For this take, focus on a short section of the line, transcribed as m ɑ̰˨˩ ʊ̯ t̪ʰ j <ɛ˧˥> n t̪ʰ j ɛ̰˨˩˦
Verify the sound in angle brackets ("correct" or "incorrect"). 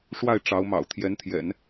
correct